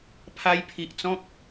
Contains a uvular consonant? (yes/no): no